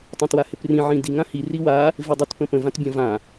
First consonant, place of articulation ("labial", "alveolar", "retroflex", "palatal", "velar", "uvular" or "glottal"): alveolar